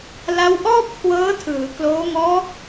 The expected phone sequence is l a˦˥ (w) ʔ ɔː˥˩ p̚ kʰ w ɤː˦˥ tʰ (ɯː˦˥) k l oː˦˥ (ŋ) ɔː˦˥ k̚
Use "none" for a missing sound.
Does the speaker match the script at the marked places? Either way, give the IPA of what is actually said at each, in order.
w, ɯː˩˦, ŋ

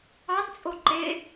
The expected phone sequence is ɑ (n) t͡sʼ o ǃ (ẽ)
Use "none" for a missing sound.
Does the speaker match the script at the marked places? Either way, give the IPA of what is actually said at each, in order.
n, e

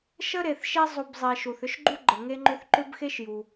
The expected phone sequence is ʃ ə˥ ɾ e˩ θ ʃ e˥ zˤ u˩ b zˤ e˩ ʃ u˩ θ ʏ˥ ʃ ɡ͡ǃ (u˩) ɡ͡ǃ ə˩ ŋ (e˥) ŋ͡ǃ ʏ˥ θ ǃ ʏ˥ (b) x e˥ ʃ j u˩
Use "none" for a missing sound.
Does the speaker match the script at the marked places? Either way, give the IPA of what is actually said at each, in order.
u˥, e˥, b

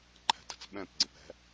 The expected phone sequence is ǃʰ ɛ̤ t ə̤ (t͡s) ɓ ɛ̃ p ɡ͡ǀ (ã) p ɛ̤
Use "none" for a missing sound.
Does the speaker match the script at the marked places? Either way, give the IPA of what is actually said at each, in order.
t͡s, ə̃

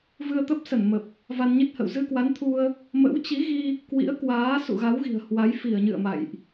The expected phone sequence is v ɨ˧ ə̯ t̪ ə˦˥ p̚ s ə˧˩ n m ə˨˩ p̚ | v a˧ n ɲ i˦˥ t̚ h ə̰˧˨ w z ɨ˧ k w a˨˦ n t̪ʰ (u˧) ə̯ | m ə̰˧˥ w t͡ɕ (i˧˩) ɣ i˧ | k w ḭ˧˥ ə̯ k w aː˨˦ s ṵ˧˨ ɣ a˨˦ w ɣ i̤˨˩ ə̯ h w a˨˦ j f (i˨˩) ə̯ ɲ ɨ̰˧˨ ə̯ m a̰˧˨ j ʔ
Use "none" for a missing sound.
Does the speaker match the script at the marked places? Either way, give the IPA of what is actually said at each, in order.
u˧, i˨˦, i˧˩

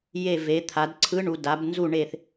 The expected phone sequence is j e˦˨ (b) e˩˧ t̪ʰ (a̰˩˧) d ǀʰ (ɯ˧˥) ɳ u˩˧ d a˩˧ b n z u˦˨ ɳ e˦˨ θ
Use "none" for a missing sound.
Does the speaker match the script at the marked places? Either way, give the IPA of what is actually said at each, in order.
v, a˩˧, ɯ˧˥

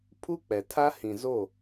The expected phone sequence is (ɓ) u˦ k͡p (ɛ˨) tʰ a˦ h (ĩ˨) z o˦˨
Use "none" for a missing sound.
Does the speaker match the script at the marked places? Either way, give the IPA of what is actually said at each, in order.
pʰ, ɛ˨, ĩ˨

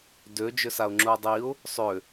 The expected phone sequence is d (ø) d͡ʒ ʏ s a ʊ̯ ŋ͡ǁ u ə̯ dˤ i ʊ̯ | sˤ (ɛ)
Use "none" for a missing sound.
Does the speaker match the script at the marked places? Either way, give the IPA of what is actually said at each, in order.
ø, ʏ

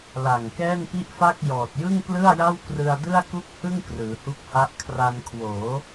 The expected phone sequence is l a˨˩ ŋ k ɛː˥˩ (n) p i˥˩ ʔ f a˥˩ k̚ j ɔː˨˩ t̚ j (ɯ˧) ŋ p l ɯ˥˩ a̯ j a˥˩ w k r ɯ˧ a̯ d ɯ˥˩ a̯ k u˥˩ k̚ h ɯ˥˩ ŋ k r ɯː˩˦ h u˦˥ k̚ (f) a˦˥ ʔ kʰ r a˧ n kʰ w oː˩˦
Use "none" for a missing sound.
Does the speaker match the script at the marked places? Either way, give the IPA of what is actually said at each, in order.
n, ɯ˥˩, h

